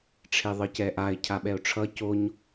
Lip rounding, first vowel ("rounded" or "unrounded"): unrounded